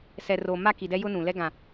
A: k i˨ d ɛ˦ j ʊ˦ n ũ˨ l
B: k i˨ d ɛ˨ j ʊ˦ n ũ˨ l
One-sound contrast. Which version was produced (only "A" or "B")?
A